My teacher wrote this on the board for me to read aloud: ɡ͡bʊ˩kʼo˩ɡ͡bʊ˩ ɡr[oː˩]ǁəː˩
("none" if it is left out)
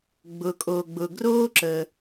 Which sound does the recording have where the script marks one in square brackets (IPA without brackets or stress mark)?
oː˥